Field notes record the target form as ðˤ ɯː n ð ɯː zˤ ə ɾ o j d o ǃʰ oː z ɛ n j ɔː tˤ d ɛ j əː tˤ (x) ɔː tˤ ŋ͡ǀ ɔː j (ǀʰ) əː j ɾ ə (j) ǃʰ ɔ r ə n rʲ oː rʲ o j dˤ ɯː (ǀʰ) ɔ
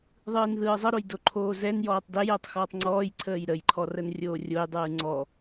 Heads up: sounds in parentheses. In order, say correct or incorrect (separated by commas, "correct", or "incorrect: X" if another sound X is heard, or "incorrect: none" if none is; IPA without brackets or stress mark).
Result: correct, correct, correct, incorrect: ŋ͡ǀ